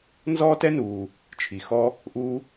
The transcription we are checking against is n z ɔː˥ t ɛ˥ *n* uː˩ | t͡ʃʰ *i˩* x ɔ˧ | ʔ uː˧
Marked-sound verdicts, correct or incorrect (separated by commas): correct, correct